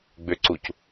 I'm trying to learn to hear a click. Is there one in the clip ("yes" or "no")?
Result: yes